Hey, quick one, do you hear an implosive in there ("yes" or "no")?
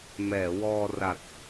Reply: no